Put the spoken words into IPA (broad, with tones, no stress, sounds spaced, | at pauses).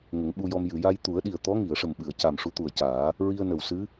ŋ ə˨˩˦ ŋ ɓ u˧ j ɔ˧ m j ɨ˨˩˨ j a˧ j t̪ u˨˩˦ ə̯ ɗ i˨˩ ə̯ t̪ ɔ˧˥ ŋ i˨˩˨ ə̯ ʂ ə˨˩ m ɓ ɨ˨˩˨ ə̯ c a˨˩ m ʂ u˧˥ t̪ u˨˩ ə̯ c aː˨˩˦ | ɹ i˧ ə̯ n ə˨˩ w s ɨ˧˥